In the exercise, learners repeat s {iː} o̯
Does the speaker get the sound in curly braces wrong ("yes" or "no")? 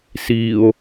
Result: no